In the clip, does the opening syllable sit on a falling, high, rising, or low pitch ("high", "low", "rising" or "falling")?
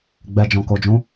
low